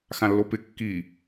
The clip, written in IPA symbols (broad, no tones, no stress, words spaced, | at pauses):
xãlːopɪ kːi